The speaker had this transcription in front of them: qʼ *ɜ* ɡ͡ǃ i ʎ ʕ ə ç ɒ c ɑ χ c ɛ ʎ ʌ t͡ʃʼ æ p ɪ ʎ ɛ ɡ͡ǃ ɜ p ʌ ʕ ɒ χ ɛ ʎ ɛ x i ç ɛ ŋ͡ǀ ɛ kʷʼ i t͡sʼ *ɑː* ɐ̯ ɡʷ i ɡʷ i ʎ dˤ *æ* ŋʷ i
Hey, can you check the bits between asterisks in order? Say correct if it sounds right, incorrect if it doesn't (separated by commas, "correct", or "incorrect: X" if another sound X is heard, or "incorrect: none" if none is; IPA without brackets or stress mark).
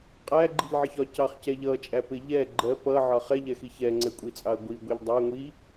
incorrect: æ, incorrect: ɑ, correct